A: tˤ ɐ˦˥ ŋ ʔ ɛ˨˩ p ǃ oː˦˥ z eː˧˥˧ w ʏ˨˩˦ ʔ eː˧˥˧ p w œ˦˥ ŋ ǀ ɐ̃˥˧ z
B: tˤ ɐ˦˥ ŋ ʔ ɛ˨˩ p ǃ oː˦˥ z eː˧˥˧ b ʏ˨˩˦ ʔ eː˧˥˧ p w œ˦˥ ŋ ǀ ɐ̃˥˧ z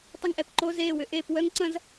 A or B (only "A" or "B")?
A